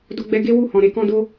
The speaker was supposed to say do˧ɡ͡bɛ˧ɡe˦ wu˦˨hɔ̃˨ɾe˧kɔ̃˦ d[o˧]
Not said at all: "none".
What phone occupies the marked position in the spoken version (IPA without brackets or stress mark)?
o˦